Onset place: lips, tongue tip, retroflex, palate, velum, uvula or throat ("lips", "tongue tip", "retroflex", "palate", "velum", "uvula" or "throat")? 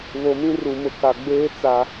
lips